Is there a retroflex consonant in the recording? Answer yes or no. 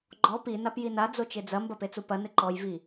no